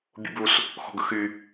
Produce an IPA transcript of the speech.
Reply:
bʲ ṵ b u s | x ɔ̤ ɡ ə̰ x y

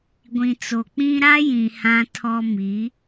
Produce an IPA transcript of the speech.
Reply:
ɡʷ ĩ˨ t͡s o˨ k͡p ĩ˦ ɾ a˦ j ĩ˨ h ã˦ tʰ ɔ˦ m i˨˦

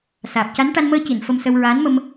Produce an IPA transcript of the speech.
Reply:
s aː˨˩ p̚ c a˧˥ n ʈ a˧ n m əː˧ c i˨˩˨ n f ə˧ m s ə˧ w ɹ aː˧˥ n m ə˧ m

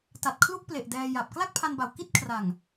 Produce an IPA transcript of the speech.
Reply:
t a˨˩ t̚ kʰ l u˥˩ k̚ p l e˨˩ ʔ d ɛː˧ j a˨˩ p̚ k l a˥˩ k̚ pʰ a˧ n b a˨˩ w k i˥˩ t̚ kʰ r a˨˩ ŋ

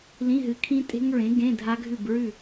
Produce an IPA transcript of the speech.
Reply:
l ĩ˧˥˧ ɦ ɨ˨˥ kʰ ĩ˦˥ tʼ e̤˦˥ ŋ ɹ ẽ˨˥ ɡ ẽ˧˥˧ dʱ a˦˥ ɡʱ ʉ˥˨ b ɹ ʉ˥˨

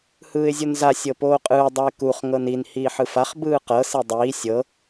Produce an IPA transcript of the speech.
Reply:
h ɯː ɪ̯ zʲ o n z a sʲ ɤ p oː qʼ ɯː dˤ a ɪ̯ k u χ ŋ ɤ n i n h iː ħ ɯ f a χ b ɯː q ɤ s e dˤ iː sʲ ɤ

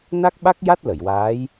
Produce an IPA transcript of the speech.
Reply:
n a˦˥ k̚ ɓ a˦˥ k̚ j a˦˥ t̚ l ə˨˩˨ j w aː˧˥ j

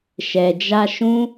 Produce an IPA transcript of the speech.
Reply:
ʃ ɛ˨ d͡ʒ a˧ ʃ ũ˦

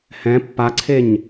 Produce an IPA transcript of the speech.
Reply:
h ɛ̃ pː a ǀʰ e ɲ

